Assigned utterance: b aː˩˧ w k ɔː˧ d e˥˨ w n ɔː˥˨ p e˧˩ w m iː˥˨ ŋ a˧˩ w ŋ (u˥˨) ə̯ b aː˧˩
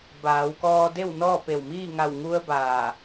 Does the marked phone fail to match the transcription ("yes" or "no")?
yes